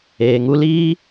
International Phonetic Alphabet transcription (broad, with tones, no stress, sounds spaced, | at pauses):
eː˨ ŋ u˧ l iː˦